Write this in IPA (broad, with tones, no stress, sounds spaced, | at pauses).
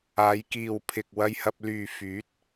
aː˨˧ j k iː˨ w pʰ ɪ˨ k̚ w ɐ˧ j h ɐ˧ p̚ l yː˨ f yː˨˥ t̚